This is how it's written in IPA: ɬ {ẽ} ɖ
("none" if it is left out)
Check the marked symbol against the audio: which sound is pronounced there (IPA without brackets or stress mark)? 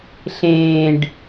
ẽ